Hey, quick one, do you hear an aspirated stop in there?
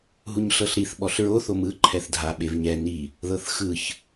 yes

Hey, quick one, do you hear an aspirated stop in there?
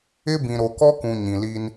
no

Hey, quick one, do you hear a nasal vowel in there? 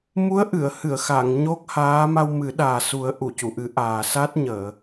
no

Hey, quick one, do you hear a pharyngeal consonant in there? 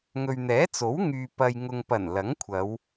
no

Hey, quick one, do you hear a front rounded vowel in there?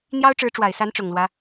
no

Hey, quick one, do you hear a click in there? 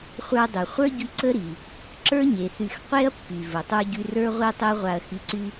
yes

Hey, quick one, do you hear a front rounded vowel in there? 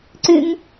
yes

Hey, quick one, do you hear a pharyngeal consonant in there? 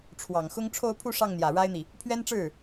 no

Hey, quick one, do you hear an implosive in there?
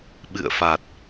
yes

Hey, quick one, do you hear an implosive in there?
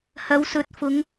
no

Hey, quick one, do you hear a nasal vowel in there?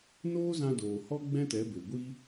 yes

